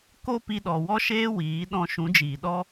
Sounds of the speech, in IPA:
ko˦ pi˧ɗɔ˨wɔ˦ʃeː˦ wiː˨˦ ɗɔ̃˧ʃũ˨˦d͡ʒiː˨ɗɔ˦

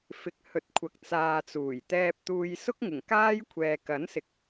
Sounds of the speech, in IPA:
fɪ˨k̚hɵ˨t̚kʷʰɐ˨k̚ t͡saː˨ t͡suː˨˩jt̪ɛː˧p̚t̪uː˧j sʊ˥k̚ŋɪ˨˩ŋ kaː˥jkʷʰɛː˨ kɐ˨˥nsɪ˨k̚

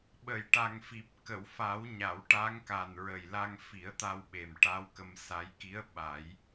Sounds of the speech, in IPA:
ɓə˨˩˨jʈa˨˩ŋfi˨˩p̚ kə˨˩˨wfa˨˩˦wɲa˨˩˨w ʈa˧˥ŋka˨˩nɹə˨˩jla˧ŋ fi˨˩˦ə̯t̪a˧wɓe˨˩m ʈa˧˥w kə˧msa˧˥j ki˧˥ə̯ ɓa˨˩˦j

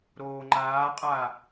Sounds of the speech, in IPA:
ɾoːŋ͡ǃaːqʼa

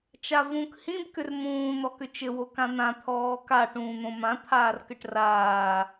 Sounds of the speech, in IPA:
t͡ʃavũk hĩb kʏrmũː n̪ɔkʏt͡ʃɘ wokãn̪ã t̪ʰɔːka ʈũːn̪õmã t̪ʰaːrkɘʈraː

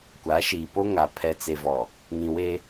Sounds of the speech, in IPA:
kʷa˨˦ʃiː˨po˦ŋa˨ pʰɛ˨t͡se˨vɔ˨ | ŋĩ˨we˦

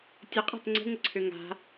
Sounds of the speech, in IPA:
tʲəqʼa̤t ŋ͡ǀə̤ŋəǀʰø ŋa̤

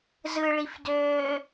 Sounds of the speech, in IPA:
zɯɭifdøː

